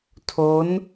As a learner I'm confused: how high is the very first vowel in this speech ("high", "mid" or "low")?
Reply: mid